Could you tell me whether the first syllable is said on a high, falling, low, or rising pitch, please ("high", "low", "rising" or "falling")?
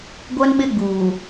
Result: high